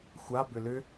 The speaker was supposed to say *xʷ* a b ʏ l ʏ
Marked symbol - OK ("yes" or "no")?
yes